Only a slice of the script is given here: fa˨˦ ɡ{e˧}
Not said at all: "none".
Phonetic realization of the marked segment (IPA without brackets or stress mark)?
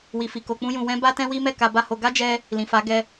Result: ɛ˧